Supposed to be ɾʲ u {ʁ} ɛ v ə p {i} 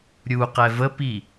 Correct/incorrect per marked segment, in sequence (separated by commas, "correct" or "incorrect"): incorrect, correct